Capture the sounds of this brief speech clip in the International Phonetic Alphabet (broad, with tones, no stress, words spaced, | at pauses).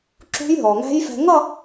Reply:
ǁṳ˦˥jɦɔ˩ŋæ̤˦˥jfɛ̤˧ ŋʌ˥˧